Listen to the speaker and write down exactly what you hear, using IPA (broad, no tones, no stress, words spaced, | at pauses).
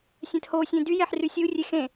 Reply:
sʲɛ̃thosʲẽ dy jɛħrysʲurʲe xẽ